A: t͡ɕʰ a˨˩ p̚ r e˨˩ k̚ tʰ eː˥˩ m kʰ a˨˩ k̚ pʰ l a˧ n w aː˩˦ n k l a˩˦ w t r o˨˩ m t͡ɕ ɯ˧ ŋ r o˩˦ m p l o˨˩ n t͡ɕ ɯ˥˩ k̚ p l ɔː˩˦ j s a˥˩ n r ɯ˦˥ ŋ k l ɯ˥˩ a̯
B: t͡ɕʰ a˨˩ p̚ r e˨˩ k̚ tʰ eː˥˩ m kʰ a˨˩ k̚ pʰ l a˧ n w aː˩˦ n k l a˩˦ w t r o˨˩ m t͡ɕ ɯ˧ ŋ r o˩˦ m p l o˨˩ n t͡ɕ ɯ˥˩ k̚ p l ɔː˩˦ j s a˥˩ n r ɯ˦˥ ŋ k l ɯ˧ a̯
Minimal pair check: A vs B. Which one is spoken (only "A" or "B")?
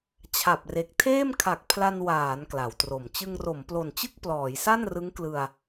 B